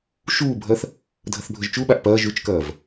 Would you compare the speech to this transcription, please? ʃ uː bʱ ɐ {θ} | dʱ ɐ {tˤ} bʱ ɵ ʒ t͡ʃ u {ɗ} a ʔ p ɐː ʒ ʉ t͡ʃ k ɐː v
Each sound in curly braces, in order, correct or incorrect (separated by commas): correct, incorrect, incorrect